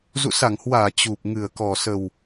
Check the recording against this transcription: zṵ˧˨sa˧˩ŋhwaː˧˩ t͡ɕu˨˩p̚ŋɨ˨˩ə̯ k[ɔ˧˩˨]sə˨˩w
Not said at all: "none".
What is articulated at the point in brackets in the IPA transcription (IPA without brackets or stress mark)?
ɔ˨˩